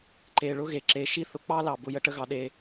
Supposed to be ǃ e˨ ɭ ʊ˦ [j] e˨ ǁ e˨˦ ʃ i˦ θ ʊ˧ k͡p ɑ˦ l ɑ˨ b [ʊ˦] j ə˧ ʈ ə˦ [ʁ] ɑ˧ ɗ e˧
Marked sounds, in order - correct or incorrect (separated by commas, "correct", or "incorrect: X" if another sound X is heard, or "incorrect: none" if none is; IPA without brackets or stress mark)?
incorrect: ɣ, incorrect: ʊ˧, incorrect: ɣ